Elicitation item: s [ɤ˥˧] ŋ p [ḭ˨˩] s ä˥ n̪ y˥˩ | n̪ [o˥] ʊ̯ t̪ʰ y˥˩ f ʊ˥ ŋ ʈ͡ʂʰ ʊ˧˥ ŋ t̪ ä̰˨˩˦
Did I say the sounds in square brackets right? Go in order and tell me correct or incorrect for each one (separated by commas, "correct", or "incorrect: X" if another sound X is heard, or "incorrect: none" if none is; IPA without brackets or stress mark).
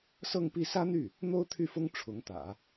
correct, incorrect: i˥˩, correct